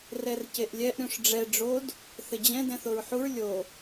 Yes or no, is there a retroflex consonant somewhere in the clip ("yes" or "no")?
yes